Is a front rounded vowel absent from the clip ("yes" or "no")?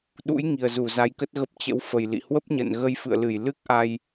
yes